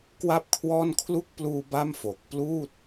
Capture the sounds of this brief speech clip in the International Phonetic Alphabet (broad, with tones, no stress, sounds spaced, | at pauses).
k w a˥˩ p̚ kʰ w ɔː˥˩ n kʰ l u˦˥ k̚ p l uː˧ b a˥˩ m f o˨˩ k̚ p l uː˥˩ t̚